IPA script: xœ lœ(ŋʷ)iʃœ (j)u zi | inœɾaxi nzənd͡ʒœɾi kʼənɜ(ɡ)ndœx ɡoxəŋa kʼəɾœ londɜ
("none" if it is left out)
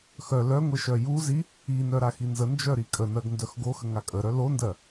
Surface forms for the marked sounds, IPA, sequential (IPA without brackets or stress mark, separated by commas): ŋʷ, j, ɡ